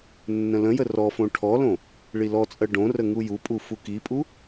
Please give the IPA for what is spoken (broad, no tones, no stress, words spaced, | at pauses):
nːə̃lə̃jə rɔfõ ʈʰɔlõ | ɭilɔt͡sʼɜ ɖõrə ŋujupʼu fukipʼu